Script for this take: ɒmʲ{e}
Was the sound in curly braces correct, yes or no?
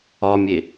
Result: yes